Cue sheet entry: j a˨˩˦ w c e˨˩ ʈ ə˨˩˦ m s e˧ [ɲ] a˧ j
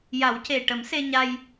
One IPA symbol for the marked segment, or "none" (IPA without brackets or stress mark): ɲ